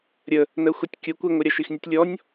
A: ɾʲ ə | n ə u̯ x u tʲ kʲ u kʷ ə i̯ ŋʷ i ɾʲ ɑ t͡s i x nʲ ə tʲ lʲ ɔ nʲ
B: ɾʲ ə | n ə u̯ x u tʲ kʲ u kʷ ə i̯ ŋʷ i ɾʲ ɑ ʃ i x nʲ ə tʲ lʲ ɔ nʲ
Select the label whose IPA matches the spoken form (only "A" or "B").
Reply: B